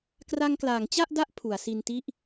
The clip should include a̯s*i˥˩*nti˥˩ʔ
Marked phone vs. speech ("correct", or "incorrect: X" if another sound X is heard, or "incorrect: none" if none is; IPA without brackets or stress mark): incorrect: i˧